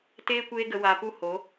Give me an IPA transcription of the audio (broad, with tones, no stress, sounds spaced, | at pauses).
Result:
t eː˦ kʷ eː˦ ɡ ə˧ w a˧ p u˦ h o˨˦